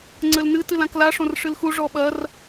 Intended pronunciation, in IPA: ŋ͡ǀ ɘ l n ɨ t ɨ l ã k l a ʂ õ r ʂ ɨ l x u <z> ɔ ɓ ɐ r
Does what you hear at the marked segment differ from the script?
yes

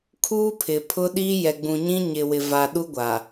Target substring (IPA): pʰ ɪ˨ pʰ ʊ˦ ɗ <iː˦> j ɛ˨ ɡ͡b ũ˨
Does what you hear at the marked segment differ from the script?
no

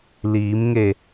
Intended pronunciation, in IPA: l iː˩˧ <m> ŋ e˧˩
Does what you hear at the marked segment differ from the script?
no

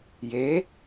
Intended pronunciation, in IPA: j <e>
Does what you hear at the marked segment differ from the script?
no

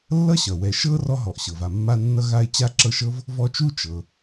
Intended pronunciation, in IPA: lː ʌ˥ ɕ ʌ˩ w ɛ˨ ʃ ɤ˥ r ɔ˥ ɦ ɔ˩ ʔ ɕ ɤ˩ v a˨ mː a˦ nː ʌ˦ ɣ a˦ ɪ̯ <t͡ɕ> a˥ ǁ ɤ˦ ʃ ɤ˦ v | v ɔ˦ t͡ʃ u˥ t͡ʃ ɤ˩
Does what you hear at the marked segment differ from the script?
no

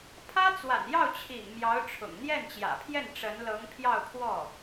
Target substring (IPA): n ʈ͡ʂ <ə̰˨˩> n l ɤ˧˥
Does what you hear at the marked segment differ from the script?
yes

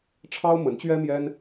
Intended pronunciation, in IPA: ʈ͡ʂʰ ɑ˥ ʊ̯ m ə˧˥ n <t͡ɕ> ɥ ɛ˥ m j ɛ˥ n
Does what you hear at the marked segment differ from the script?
no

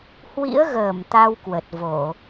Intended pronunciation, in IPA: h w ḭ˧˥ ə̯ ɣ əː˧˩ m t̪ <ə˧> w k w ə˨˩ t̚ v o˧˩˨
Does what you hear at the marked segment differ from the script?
yes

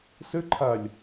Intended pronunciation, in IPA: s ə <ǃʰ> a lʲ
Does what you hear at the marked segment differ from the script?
no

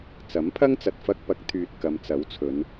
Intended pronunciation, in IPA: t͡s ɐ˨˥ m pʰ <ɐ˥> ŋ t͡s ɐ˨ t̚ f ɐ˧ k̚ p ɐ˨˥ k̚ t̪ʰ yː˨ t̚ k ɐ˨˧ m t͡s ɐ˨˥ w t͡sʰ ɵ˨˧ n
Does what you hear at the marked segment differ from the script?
no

